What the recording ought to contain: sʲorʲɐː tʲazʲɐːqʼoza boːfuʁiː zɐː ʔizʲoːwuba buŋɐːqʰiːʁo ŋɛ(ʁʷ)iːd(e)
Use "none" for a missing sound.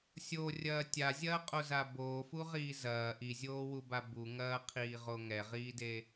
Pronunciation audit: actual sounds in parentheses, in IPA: ʁ, e

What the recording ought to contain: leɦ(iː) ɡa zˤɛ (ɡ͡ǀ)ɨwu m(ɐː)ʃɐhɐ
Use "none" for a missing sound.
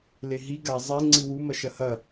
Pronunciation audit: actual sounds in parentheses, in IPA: i, ŋ͡ǀ, ɐ

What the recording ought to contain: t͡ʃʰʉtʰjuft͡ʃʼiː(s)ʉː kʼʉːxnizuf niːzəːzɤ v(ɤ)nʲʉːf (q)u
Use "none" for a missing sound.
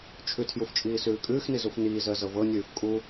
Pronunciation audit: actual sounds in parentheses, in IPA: s, ɤ, kʼ

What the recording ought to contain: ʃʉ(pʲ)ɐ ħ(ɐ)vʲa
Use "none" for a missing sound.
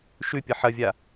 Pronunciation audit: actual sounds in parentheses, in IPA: pʲ, ɐ

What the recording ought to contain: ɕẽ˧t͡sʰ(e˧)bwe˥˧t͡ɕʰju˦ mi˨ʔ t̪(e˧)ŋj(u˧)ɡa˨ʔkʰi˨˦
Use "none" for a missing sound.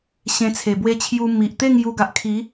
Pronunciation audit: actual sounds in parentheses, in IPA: e˨˩, e˥˧, u˧

